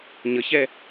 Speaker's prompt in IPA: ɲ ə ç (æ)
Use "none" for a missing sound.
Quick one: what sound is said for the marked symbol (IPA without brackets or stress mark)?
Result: ɛ